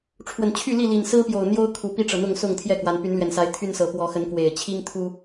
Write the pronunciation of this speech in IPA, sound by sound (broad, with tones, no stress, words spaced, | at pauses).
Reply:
ʈ͡ʂʰwə˨˩nt͡ɕʰy˥˨li˥˨ li˨˩n sɹ̩˦pjo˨˩ʊ̯ n̪jo˦ʊ̯ kʰu˨˩pi˥˨ʈ͡ʂɤ˩ n̪ʊ˥˨ŋsʊ˥˨ŋt̪ʰjɛ˥˨kwa˨˦n py˨˦nlɥɛ˨˩nsa˨˦ɪ̯ t̪ʰy˦nsɤ˨˦ pwɔ˨˦ xə˨˦nkwe˨˩ɪ̯ t͡ɕʰi˦ŋt̪ʰu˦